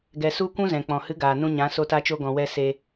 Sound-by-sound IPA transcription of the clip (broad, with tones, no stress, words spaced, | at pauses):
ɡɛ˨ su˧ kʷũ˦zɛ̃˨k͡pɔ̃˨ hɨ˨˦ɡaː˨ nũ˧ɲã˨˦ so˧ta˧t͡ʃo˧ɡɔ̃˨ wɛ˦ se˧